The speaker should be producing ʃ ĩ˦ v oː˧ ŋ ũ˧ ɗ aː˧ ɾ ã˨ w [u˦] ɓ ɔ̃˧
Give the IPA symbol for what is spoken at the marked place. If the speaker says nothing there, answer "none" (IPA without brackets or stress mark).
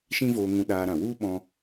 u˦